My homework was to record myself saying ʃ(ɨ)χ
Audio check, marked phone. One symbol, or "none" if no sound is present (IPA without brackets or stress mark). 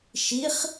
i